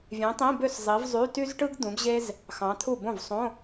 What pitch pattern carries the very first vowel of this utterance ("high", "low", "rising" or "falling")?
rising